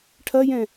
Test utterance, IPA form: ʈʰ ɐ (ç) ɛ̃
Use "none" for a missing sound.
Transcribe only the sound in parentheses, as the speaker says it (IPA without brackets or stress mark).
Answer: j